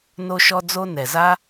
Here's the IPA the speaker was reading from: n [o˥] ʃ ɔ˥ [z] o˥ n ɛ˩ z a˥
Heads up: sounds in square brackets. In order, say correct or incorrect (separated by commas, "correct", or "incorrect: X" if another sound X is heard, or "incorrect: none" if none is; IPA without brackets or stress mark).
correct, incorrect: d͡z